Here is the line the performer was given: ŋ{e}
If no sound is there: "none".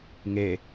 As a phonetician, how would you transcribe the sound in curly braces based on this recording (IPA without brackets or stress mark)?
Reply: e